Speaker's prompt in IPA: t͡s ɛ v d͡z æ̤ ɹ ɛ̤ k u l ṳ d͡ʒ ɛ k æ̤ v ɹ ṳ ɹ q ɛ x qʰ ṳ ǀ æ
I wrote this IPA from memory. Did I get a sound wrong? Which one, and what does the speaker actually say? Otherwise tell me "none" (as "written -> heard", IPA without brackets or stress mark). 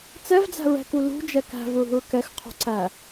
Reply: q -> k